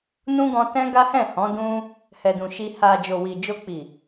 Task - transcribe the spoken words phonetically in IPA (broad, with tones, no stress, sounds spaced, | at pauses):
n ũ˦ ɡ ɔ̃˧ t ɛ̃˦ ɡ a˦ h ɛ̃˦˨ h ɔ̃˨˦ d ũ˦ | h ɛ˨ d ũ˨ ʃ i˧ h a˨ d͡ʒ o˨ w i˨ d͡ʒ o˧ k͡p i˨